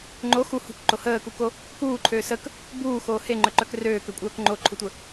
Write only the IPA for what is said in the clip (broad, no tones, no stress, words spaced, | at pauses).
ŋ͡ǃo xu hṳkǃo həːkuko | kuːǃʰøː sək | buːxoː heŋ͡ǃœǃœk røːkøkʷʼœːk ŋ͡ǃoǃʰutʷə